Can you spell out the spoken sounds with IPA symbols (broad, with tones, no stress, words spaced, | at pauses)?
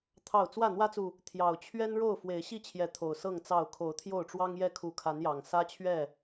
t̪ʰɑ˥˨ʊ̯ t͡swä˥˨n̪wä˦t͡su˨ | t̪ʰjɑ˨˩ʊ̯t͡ɕʰɥɛ˦nɻo˥˨ʊ̯ fwe˨˦ɪ̯ɕi˥˨t͡ɕʰjɛ˨˦ t̪ʰo˨˩ʊ̯ sɤ˥˨ŋt͡sɑ˥˨ʊ̯ kʰo˨˦ʊ̯t̪ʰjo˥˨ʊ̯ʈ͡ʂwɑ˦ŋjɛ˥˨ kʰu˨˦kʰa˨˦njɑ˨˩ŋ sä˦t͡ɕʰɥɛ˥˨